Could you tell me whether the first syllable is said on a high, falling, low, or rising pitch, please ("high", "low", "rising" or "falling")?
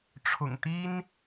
low